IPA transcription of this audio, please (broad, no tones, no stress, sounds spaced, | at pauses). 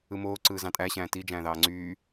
ɯ m oː ǀ ɯː z ɑ̃ tʼ æ ɕ æ̃ː t i d͡ʒ æ̃ː ð ɑː ŋ͡ǀ yː